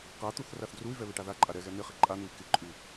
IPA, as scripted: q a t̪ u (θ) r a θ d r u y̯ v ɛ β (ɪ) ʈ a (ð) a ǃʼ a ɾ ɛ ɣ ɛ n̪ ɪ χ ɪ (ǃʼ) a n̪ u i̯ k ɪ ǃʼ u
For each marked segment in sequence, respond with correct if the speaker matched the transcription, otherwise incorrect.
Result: correct, correct, correct, correct

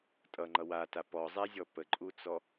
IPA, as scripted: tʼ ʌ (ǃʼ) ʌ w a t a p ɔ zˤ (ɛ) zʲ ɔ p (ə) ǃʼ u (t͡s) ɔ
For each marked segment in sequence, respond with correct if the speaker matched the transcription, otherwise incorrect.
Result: incorrect, correct, correct, correct

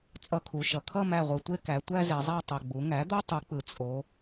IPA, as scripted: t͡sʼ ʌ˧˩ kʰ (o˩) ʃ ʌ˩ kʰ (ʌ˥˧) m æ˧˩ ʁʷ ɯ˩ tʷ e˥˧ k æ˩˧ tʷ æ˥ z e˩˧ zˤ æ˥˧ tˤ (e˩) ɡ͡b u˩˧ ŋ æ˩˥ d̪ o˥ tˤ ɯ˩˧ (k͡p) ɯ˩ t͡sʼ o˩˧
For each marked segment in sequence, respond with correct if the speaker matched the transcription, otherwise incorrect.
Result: incorrect, correct, correct, correct

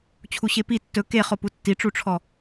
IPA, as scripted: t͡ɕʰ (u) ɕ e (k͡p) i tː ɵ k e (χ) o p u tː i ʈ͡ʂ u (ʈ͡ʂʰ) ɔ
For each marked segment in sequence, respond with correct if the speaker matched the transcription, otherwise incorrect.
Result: correct, incorrect, correct, correct

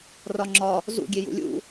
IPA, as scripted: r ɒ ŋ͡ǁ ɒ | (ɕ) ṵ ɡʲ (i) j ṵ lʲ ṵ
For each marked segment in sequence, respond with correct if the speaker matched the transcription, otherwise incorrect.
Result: incorrect, incorrect

